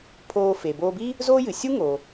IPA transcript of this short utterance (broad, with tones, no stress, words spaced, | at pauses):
pʰoː˧fe˩boː˧bi˥ | zoː˥jɨ˩ sʲu˥ŋo˩